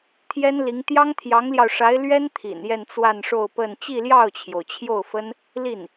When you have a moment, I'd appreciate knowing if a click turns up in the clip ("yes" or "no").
no